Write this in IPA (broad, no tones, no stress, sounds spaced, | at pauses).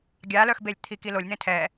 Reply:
ɡʲ a l œ x b e lʲ t̪ʰ i k i l o lʲ n̪ ẽ tʰ ɛ